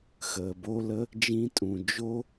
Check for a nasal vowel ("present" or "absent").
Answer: present